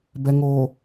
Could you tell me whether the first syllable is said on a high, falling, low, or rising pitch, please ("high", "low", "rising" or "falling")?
low